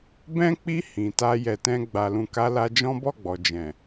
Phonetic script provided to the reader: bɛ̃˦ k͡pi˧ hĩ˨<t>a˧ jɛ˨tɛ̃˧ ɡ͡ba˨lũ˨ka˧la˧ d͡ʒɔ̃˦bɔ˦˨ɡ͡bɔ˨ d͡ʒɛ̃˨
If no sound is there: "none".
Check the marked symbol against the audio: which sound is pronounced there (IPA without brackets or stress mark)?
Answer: t